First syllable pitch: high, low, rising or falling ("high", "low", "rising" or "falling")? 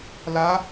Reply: high